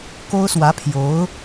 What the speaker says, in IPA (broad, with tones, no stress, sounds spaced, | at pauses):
k o˥ ʊ̯ s w ä˧˥ pʰ j o˧˥ ʊ̯